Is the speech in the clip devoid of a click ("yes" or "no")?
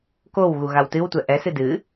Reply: yes